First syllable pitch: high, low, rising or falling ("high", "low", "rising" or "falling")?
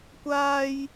high